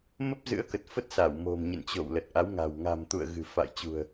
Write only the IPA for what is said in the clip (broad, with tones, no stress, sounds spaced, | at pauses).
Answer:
m ə˦˥ p̚ z ɨ̰˧˥ ə̯ k ə˨˩ t̚ f ə˦˥ t̚ s a˧˩ w m o̤˨˩ m ɲ ə̰˧˨ n t͡ɕ o̰˧˨ w l ə˨˩ t̚ ʔ a˨˦ w ŋ a̤˨˩ w ŋ a̤˨˩ m t̪ ṵ˧˨ ə̯ ɣ ɨ̤˨˩ f a̰˧˨ j t͡ɕ ṳ˨˩ ə̯